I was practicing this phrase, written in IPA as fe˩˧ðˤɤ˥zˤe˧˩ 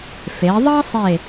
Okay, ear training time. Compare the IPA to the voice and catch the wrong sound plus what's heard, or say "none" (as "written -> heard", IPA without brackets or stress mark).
zˤ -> sˤ